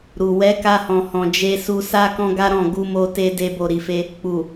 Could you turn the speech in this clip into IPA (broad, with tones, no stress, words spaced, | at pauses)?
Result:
ɾu˨ wɛ˨˦ka˧hɔ̃˨hɔ̃˨ d͡ʒe˧su˧sa˦ kɔ̃˦ɡa˦ɾɔ̃˦˨ ɡu˧mo˧te˧ de˦bo˦˨ɾi˧fe˦ | k͡pu˨